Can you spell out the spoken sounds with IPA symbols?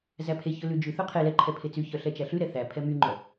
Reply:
z æ pʰ e ç ɵ l ʉ d͡ʒ ʉ θ ɵ qʰ e l ɛ ǃʰ ɛ pʰ e t͡s y ç œ ɬ ɛ t͡ʃ æ ɬ ʉ ɾ ɛ θ æ pʰ ɛ m y ŋ͡ǃ œ

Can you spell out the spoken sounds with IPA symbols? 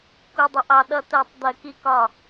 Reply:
k u˧ dˤ ɪ˧ ʔ ɑ˧ ɗ ʌ˦ t ɜ˦˨ tˤ d̪ ɜ˦ k i˦ k ɒ˦˨

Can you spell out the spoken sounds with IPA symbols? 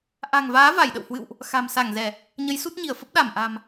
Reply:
ʔ a̤˨˩ ŋ v aː˨˦ v a˧˩ j ɗ ə̰˧˨ w h w ɨ̰˧˨ w ʔ | x a̤˨˩ m s a˧˩ ŋ z ɛ˧˩˨ | ɲ ə˨˦ j s u˦˥ t̚ ɲ i˧˩ ə̯ f ə˦˥ p̚ ɗ a˧˩ m ʔ a̤˨˩ m

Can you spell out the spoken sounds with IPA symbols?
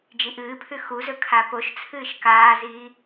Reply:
d͡ʒ i ʔ ɨː pʰ ʉ x u z ɵ kʰ a p o ʃ t͡sʰ ɨː ʃ k aː z iː

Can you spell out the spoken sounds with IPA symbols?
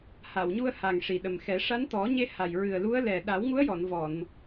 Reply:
h a˨˩˨ w ɲ u˧ ə̯ h a˨˩ ŋ ʂ i˨˩ ɗ ə˨˩ m x ɛ˨˩˦ ʂ a˧˥ n t̪ ɔ˨˩˦ ɲ e˧ h a˨˩ j ɹ ɨ˨˩ ə̯ l u˧˥ ə̯ l ɛ˨˩ ɗ a˨˩˦ w ŋ u˧˥ ə̯ j ɔ˨˩˨ n v ɔ˨˩˨ n

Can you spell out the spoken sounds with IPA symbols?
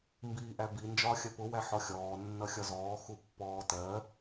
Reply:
m b iː ʔ æ b i n d͡ʒ ɒː xʲ ɜ p ʊ w æ ħ ɔ xʲ ɔː nː ʌ xʲ ɒ z ɔː x u pː ɔː t ɜ

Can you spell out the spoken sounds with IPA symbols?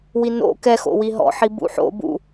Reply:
w i n o̰ k ɛ x o̰ w i ɦ ɔ̰ ħ i b ṵ ħ o̰ b ṵ

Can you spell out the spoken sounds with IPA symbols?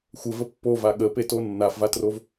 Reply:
xʷ ə v ə pː o v a ɠ ə p e t o nː a f v a t r o v

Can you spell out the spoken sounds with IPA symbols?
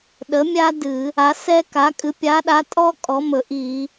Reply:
ɗ ə˨˥ mʲ a˥ d ɨ˧˩˧ | a˨˥ s ɛ˥ k a˨˥ kʼ ɨ˨˥ pʲ a˨˥ ɗ a˨˥ tʼ ɔ˥ kʼ ɔ˨˥ m ɵ˧˩˧ ʔ i˧˩˧

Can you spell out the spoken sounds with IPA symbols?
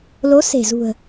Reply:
l o˨˦ s e̤˨˩ z ṳ˨˩ ə̯

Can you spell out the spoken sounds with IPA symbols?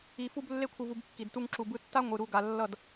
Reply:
i˧ f u˦ b lː e˦ kʷʰ ɯ˧ v u˧ b kː i˨ d t u˧ ŋ ǁ u˨ b ɯ˧ tː a˦ ŋʷ ɯ˨ ɾ u˧ ɡ a˨ lː ʌ˦˨ d

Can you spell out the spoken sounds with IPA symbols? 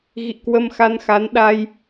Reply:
ɣ ḭ˧˨ k w ə˧ m x a˧ n x a˨˦ n ɗ a˧ j

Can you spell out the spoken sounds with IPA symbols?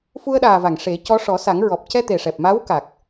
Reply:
f u˧ ə̯ ɗ aː˨˩ v a˨˩˨ ŋ ʂ e˨˩˦ c ɔ˧˥ ʂ ɔ˨˩˦ s a˨˩˦ ŋ ɹ ɔ˨˩ p̚ c ɛ˧ t̪ e˨˩ ʂ ɛ˨˩ p̚ m a˧˥ w k a˨˩ k̚

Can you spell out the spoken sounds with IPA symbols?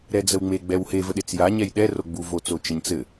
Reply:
ɾ ɛ d͡z ə w ŋ͡m e ɡ͡b ɛ w h e v ə ɗ e t͡s j a ɲ ɛ j ɗ ɛ r o ɡ͡b u v o t͡s o t͡ʃ ə ɲ t͡s ɘ

